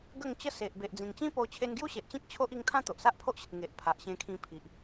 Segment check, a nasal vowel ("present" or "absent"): present